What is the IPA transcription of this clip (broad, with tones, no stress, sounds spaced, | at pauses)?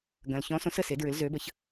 ɡ ɐ̃˨ l ç ɔ̃˨˦ s õ˨˦ s ə˨ s e˨˦ d ɹ ʏ˨˦ l z ø˨˦ b ə˨˦ ç